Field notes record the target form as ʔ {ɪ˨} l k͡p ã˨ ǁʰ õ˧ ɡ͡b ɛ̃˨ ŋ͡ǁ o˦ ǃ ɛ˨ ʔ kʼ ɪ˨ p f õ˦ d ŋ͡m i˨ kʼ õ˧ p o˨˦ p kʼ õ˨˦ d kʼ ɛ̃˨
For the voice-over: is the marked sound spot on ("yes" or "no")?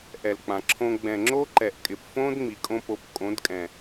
no